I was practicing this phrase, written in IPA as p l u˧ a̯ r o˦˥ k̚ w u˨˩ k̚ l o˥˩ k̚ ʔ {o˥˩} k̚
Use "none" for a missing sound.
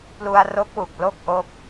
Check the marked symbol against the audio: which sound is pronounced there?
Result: o˦˥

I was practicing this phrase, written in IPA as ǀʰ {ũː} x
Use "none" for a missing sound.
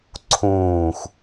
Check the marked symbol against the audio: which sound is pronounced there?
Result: ũː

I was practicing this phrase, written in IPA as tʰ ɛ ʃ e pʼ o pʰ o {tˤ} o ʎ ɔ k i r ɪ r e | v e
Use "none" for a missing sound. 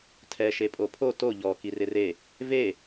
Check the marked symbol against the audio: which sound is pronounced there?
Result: t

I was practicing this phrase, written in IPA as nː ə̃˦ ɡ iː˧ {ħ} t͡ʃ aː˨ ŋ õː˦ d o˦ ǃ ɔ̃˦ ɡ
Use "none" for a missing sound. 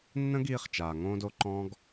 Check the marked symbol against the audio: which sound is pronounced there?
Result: χ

